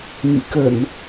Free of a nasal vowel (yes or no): yes